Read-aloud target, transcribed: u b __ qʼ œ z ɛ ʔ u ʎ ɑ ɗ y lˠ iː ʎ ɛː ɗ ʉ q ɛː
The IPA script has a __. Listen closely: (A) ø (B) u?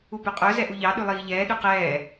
A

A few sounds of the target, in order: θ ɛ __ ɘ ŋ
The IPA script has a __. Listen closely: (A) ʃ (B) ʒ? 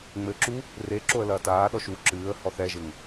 B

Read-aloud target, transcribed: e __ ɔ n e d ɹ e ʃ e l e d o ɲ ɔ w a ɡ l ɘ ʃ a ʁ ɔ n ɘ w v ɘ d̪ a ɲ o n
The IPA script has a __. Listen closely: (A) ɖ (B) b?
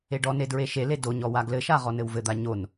A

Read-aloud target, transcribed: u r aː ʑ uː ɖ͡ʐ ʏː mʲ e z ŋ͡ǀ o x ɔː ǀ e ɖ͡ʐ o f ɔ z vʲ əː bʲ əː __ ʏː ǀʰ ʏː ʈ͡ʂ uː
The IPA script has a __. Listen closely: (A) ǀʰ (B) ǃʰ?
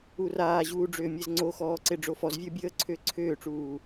A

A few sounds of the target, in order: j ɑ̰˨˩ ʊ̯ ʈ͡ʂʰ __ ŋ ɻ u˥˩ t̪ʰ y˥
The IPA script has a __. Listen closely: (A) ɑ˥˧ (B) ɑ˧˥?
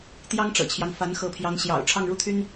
A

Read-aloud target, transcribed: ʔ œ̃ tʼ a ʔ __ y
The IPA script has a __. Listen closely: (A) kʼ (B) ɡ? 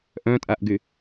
B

